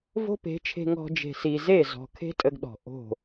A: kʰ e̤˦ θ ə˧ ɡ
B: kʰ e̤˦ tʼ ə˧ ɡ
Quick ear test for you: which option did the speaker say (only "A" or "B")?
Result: B